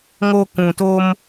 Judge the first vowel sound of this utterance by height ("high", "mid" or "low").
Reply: mid